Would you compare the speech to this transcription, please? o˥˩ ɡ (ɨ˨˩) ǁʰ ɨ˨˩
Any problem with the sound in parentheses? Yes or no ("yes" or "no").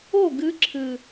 yes